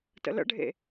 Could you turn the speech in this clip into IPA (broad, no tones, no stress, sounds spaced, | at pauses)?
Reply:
t ə̰ l ə̰ ɖʱ ḛ